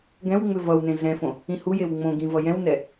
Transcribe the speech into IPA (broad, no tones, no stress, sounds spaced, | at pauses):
ɡ ɛ̃ w ŋ͡m ʏ v ʌ w n ẽ ɮ ɛ̃ f õ | ĩ h u j e w ŋ͡m õ ɡ ĩ v ʌ j ɛ̃ w n ɛ